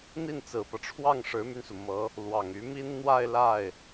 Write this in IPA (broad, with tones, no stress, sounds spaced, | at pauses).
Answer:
n̪ i˥˩ n t͡s ɹ̩˨˩ p ɤ˦ ʈ͡ʂʰ w ɑ˥˩ ŋ ʂ ɻ̩˧˥ m y˧ n s u˩ m ɤ˧˥ | l w ɑ˨˩ ŋ y˧˥ m i˥ n n̪ w a˥˧ ɪ̯ l a˥˩ ɪ̯